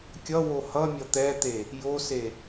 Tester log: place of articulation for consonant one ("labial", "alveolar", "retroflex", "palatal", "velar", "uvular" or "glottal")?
velar